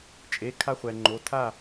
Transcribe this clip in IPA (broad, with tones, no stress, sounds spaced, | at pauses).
t͡ʃʼ e˩˧˩ kʰ a˧ χʷ ɛ˩ ŋ͡ǃ o˩˧˩ tʰ a˥˩